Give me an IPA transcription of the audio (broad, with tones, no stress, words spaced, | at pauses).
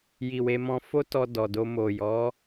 ji˨ we˧ mɔ̃˧ fo˦tɔ˧ dɔ˨do˧ mo˨jɔ˨˦